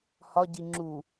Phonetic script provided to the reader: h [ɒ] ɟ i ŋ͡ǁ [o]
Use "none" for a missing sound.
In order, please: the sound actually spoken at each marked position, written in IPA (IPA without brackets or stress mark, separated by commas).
ɒ, u